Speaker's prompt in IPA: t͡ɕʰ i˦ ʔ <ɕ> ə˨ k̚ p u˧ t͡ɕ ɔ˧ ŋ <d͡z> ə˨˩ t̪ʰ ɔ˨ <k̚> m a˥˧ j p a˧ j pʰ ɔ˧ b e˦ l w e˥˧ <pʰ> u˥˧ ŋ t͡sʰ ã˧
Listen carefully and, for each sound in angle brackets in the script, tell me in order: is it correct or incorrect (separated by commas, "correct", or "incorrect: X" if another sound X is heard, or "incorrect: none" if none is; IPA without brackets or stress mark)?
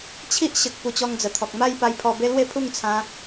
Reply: correct, correct, correct, correct